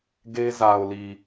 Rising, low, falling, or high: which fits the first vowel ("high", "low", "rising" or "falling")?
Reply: high